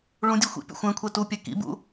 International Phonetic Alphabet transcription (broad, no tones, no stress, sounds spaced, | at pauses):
ɭ ũ dʲ ɛ xʷ ḭ pʲ ṵ xʷ ɛ̃ kʷʰ ɛ t u pʲ ɛ k ḭ b ṵ